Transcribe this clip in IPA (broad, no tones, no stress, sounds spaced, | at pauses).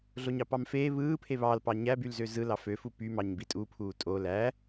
ɮ o ɲ ɑ p ɑ m f eː β ɯː pʰ e β ɑ l p ɑ ɲ æ b y l z ø z ɯ l ɑ f ø f u p y m ɑ ɲ b i tʼ u pʰ uː tʼ o l æ